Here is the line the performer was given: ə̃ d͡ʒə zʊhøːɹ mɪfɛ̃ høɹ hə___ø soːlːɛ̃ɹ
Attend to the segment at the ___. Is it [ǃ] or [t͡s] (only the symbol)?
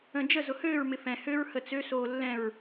t͡s